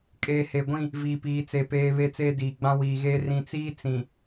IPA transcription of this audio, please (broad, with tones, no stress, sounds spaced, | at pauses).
kʼ eː˨ h e˨ ɡʷ ĩ˦˨ | v iː˨ p iː˨˦ t͡s e˨ p eː˦ β e˦ t͡s eː˦ d iː˨ ɡ͡b ã˦ w iː˨ ɣ eː˦ r ĩ˨ t͡s iː˦ t͡s ĩ˨